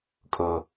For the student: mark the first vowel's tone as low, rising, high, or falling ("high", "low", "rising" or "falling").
low